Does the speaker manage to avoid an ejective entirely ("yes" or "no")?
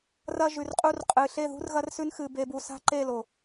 no